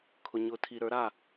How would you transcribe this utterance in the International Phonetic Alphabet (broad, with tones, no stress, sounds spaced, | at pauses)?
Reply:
kʰ ʊ˨ ɲ ʊ˨˦ tʰ i˨ ɾ ə˞˨˦ ɾ a˥˩